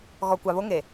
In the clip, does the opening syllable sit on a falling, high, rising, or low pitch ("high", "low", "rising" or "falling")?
low